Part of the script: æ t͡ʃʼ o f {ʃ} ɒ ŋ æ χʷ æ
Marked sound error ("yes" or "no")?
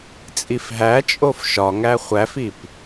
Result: no